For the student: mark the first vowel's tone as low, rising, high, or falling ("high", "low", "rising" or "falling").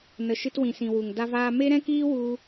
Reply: low